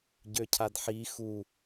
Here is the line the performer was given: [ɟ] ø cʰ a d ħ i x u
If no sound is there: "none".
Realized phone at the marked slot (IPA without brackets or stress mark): ɟ